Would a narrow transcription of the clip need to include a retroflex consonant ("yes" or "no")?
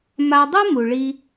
yes